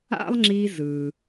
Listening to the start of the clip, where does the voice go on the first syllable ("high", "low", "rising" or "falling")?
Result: high